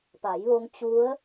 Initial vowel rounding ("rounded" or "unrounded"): unrounded